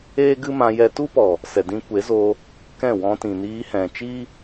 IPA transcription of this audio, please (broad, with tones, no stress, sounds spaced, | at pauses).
eː˦ ɡ ɨ˦ m ã˧ j ɛ˧ t u˦ p ɔ˨ | s ɛ˨ d ĩ˧ kʷ e˨˦ z o˧ | k ɛ̃˦˨ w ɔ̃˧ t ĩ˨ n iː˧ h ɛ̃˨ t͡ʃ i˦